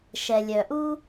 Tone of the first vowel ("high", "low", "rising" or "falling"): low